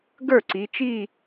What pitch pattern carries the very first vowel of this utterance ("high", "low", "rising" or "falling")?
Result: falling